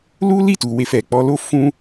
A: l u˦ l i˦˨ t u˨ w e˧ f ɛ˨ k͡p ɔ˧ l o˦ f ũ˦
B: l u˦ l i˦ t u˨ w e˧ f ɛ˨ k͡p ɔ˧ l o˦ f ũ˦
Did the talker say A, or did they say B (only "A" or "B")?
A